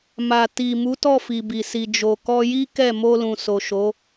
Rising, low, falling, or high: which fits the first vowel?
low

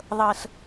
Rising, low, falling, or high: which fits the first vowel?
low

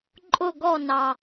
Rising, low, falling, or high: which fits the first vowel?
falling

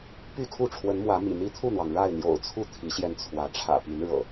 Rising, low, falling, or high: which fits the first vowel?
falling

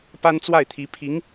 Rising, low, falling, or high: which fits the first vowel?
high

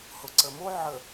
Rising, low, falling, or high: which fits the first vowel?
low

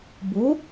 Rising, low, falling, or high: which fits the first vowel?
rising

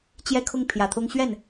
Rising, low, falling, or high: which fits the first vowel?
falling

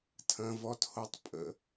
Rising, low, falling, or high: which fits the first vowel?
low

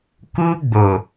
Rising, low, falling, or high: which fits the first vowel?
high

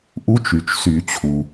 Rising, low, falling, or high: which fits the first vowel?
rising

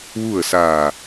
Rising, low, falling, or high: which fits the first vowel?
falling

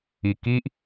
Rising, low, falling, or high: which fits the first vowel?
low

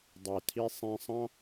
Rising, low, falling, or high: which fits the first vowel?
low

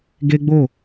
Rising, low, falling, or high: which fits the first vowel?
high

